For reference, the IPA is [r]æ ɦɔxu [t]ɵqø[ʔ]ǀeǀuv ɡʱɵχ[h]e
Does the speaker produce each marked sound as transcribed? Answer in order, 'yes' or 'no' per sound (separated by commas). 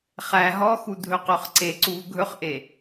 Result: no, no, no, no